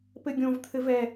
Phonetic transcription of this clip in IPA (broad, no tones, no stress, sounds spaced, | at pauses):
p ɘ ɡʲ õ v t̪ʰ ɘ v ɛ